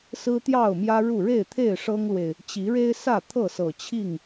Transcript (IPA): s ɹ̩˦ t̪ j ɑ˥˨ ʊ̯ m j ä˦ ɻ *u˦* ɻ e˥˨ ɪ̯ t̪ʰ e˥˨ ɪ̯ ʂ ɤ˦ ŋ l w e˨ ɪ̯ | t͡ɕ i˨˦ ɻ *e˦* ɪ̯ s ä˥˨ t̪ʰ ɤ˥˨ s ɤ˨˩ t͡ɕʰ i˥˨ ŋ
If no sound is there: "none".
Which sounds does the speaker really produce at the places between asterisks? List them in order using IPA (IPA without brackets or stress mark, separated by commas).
u˥˨, e˦